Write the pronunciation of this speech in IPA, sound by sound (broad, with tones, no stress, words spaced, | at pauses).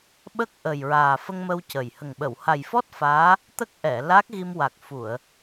ɓə˦˥k̚ʔə˨˩jɹaː˨˩ fə˧ŋmə˧wcə˨˩j hə˨˩ŋɓə˨˩˨w ha˨˩jfɔ˦˥t̚ faː˧˥ | t̪ə˦˥k̚ ʔɛ˨˩˨ la˦˥k̚ɣi˧mwa˨˩k̚ fu˨˩˨ə̯